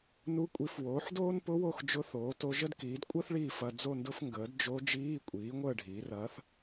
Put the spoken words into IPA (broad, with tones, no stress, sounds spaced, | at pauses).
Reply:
n u˧˥ kʷʼ i˩˥ f w oː˩˥ ħ d oː˥ n p ʊ˧˥ w o˥˨ x d͡ʒ ʊ˧˥˧ θ oː˩˥ t o˧˥ ʒ ə˥ d k iː˩˥ d kʷʼ əː˥ θ ɭ iː˥˨ f ɐ˧˥˧ d͡z o˥˨ n d ʊ˥ f ŋ ɡ əː˩˥ d d͡ʒ o˧˥ d͡ʒ iː˧˥˧ kʷʼ iː˩˥ ŋʷ əː˥˨ ɖʱ iː˩˥ r ɐː˧˥ θ